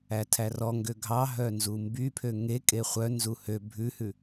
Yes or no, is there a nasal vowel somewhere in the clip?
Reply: no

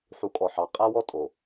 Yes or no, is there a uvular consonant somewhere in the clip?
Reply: yes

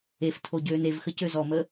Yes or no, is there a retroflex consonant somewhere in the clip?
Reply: no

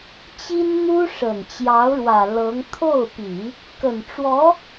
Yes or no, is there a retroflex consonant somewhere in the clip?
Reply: yes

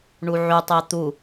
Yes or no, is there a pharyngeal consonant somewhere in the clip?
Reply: yes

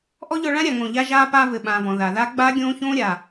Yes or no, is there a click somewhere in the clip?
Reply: no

